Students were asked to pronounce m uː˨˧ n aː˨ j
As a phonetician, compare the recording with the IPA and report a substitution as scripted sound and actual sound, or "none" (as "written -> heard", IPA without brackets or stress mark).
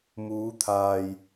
n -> t̪ʰ